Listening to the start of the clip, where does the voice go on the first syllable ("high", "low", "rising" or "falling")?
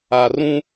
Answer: high